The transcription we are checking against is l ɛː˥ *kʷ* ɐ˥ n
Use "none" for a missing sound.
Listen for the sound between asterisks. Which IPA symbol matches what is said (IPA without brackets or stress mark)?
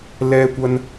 kʷ